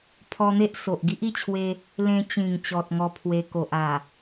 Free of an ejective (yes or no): yes